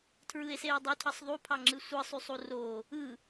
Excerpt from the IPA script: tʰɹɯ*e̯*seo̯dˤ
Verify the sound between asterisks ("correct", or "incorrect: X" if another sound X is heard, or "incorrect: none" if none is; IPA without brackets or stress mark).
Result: correct